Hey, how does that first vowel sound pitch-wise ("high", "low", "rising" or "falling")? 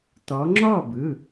rising